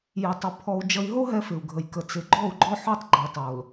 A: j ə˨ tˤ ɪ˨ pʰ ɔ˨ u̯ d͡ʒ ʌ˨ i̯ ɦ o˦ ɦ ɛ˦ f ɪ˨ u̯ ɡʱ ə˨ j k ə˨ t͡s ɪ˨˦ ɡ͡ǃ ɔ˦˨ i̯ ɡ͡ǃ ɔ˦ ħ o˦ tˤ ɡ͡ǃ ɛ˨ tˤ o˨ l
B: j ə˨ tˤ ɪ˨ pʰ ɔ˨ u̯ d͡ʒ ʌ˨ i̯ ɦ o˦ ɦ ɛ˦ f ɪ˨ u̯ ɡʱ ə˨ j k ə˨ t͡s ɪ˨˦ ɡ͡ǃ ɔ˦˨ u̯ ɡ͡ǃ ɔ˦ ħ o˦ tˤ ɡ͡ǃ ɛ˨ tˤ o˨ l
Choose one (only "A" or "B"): B